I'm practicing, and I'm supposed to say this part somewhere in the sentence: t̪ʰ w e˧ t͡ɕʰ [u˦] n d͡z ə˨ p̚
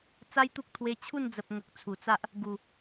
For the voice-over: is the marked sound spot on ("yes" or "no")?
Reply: no